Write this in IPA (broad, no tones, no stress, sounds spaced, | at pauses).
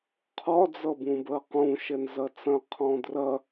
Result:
qʰ ɒ d͡z ʌ b ũ b ɜ q ũ ʃ ɛ n z ɐ t͡s ɐ̃ qʰ ɔ̃ d r ɐ